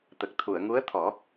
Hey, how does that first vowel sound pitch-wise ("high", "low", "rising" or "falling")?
low